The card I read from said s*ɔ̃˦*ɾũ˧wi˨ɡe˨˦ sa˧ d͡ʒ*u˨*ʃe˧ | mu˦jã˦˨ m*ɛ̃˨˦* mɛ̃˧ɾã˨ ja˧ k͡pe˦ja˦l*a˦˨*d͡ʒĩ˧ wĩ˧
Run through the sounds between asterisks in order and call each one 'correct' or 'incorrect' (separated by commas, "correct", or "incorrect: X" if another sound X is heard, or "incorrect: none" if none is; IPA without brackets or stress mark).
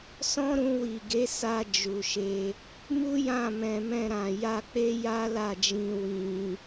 correct, correct, incorrect: ɛ̃˨, correct